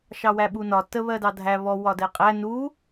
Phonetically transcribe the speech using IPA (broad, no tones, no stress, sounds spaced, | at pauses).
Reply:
ʃ ɑ w æ ɓ u n ɒ t ə β ɜ d ɑ dʱ æ β ɔ w ɒ d ɛ qʼ æ n u